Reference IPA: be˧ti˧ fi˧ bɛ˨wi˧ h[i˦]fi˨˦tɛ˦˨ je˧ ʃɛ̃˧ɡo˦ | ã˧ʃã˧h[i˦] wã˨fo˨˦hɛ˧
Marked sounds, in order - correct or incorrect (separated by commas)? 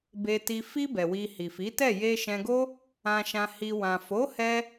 incorrect, incorrect